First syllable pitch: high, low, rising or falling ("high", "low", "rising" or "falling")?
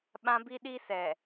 high